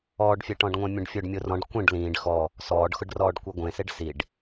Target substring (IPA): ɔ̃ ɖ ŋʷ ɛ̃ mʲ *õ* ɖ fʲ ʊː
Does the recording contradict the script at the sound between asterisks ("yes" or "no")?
no